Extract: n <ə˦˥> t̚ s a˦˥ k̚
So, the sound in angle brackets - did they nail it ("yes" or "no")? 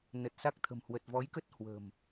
no